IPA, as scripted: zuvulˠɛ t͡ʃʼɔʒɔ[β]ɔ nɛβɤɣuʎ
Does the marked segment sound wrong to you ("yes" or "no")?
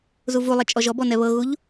yes